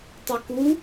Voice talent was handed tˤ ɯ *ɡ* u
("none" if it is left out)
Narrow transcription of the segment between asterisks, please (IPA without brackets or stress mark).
k